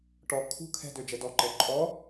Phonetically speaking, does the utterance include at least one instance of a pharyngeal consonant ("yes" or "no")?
no